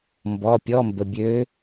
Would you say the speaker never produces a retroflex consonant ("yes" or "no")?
yes